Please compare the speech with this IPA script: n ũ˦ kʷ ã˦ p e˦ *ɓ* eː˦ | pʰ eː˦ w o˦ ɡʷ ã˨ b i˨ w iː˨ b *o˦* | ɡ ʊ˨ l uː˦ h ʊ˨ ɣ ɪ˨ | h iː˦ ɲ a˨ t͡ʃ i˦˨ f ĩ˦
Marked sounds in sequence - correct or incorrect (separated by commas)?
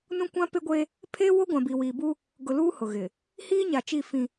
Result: incorrect, incorrect